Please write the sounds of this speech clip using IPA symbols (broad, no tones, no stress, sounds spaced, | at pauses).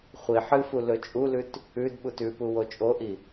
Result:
χʷ i ħ ɨ f u l ɵ t͡ʃʼ u l ʉ t | ʉ d ɓ u t ʉ p u w o t͡ʃʼ o ʔ i